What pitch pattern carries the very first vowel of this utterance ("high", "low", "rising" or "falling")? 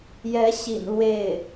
rising